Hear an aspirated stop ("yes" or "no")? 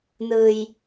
no